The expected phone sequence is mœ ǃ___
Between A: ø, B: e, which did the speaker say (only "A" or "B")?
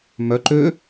A